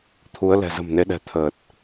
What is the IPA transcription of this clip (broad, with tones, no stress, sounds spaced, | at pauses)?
t̪ʰ u˨˦ ə̯ l ɛ̤˨˩ z ə̤˨˩ m n e˨˦ ɗ ɛ̤˨˩ t̪ʰ əː˨˩ t̚